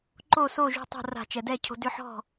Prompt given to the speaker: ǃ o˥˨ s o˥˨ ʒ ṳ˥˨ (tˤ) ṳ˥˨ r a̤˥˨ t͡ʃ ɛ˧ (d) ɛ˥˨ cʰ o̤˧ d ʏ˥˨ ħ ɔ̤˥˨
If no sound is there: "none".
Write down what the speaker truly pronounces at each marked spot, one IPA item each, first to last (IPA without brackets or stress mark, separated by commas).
tˤ, d